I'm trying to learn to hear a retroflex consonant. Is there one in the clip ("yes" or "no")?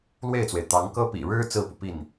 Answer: yes